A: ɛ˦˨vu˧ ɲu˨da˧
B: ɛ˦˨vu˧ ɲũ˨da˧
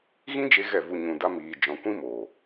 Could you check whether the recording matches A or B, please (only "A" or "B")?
B